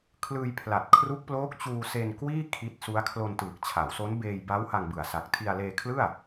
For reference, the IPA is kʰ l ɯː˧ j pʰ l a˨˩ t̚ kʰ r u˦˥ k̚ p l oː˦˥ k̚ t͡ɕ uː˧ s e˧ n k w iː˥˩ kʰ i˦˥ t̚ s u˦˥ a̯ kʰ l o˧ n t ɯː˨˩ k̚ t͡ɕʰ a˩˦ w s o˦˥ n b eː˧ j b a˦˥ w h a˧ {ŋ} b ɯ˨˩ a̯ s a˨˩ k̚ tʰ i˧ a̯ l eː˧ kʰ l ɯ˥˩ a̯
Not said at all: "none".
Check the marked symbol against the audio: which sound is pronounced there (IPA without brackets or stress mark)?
ŋ